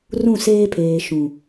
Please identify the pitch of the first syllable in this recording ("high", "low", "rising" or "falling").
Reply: falling